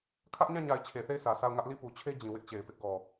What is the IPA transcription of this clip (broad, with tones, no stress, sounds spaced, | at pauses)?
kʰ ä˦ ʔ ɲ ã˦˨ ɲ a˨ ɪ̯ t͡ɕʰ e˨ θ e˦˨ ɪ̯ sʰ ä˨ s a˦˨ ʊ̯ ŋ ä˦ ʔ l i˦˨ p u˨ t͡ɕʰ e˦ d͡ʑ ĩ˨ w ɪ˦ ʔ t͡ɕ e˨ ɪ̯ p ɪ˦ ʔ ɡ ɔ˨